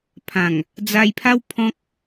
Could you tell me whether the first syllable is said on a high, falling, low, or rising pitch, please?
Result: low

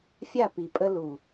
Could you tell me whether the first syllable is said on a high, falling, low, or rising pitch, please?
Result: falling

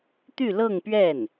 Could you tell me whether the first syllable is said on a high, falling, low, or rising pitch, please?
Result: falling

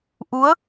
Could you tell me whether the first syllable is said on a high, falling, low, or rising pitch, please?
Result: rising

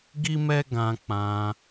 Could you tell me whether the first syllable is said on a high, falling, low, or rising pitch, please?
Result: high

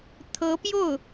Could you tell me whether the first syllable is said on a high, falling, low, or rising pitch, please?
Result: rising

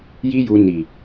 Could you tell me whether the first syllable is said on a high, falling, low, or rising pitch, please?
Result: high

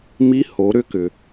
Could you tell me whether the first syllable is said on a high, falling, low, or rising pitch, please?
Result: rising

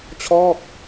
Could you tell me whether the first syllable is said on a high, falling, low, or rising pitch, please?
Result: falling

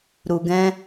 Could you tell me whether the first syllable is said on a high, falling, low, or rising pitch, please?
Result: low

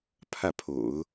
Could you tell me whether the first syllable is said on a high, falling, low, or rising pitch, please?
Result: falling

